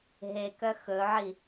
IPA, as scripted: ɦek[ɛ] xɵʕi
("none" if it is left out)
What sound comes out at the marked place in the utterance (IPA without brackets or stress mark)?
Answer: œ